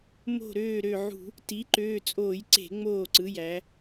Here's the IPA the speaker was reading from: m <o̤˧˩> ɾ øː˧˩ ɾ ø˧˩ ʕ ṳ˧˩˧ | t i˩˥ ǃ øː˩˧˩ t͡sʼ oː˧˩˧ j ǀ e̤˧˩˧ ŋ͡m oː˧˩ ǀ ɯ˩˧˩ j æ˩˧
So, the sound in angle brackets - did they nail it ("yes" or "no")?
yes